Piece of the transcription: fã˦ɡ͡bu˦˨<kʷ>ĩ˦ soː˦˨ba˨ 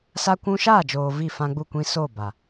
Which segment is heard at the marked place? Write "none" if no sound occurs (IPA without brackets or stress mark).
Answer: kʷ